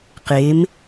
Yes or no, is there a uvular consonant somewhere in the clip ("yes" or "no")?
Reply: yes